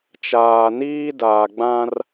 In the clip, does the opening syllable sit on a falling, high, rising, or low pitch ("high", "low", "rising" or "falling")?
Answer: low